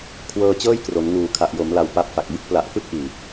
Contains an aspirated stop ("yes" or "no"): yes